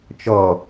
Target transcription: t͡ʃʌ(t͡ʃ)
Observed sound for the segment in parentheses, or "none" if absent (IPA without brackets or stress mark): none